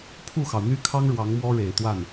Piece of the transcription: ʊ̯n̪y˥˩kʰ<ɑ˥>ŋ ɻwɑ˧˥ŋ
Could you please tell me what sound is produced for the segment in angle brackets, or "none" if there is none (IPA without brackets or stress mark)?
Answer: ɑ˥